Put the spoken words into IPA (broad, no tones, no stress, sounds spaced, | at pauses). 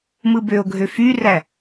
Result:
m ɯ b ø o̯ ɡʱ ø f y r æ